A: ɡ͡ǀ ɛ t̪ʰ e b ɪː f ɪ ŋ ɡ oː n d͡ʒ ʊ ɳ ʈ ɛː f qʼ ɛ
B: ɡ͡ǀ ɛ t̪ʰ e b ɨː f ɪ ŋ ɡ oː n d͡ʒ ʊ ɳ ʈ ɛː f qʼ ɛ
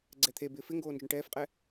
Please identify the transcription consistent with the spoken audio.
A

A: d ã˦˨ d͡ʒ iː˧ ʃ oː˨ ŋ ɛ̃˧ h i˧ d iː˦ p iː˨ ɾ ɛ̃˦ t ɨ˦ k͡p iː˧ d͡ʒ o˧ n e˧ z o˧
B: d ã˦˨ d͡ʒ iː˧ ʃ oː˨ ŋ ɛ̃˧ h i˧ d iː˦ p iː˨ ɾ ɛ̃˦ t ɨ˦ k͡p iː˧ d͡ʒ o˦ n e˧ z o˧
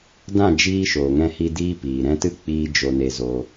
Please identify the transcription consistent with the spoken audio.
A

